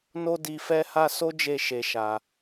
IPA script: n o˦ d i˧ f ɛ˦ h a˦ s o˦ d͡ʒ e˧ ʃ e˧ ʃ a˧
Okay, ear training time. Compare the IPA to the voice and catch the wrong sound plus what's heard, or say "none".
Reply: none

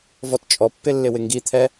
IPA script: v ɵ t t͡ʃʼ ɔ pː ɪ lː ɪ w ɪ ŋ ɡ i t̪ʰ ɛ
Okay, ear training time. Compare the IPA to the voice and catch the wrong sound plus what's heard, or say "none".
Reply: ɵ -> ɔ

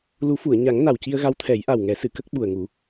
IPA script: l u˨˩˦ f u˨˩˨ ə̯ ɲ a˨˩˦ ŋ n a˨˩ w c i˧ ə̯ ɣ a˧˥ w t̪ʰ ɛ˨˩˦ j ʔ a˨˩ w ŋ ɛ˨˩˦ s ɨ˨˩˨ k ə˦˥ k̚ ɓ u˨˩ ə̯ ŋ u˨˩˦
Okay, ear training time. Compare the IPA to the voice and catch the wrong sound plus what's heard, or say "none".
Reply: none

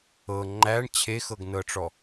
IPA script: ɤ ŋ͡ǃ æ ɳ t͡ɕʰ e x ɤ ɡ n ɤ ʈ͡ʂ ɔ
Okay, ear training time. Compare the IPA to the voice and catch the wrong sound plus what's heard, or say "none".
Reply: none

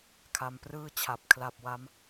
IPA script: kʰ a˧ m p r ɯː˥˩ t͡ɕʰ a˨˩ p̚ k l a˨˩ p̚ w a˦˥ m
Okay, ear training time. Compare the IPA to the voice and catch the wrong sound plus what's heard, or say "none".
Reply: k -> kʰ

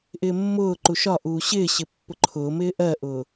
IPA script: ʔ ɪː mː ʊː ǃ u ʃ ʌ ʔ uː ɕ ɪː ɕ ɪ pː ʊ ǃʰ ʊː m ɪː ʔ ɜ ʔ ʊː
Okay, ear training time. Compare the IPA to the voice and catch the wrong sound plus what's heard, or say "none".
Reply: ʌ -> ɒ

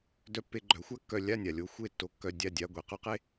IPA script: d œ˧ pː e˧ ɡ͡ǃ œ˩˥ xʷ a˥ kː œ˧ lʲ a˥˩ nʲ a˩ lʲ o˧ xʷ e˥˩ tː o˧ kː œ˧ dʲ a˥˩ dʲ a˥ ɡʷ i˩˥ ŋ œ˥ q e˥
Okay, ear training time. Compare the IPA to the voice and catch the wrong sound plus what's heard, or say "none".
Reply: ŋ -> q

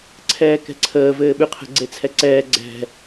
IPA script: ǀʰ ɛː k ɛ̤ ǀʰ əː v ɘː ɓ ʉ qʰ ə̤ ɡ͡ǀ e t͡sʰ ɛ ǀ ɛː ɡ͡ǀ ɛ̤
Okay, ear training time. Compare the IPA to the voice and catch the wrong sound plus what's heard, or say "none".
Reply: none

